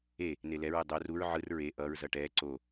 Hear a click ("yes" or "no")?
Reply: yes